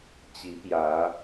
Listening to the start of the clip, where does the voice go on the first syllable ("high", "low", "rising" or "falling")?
rising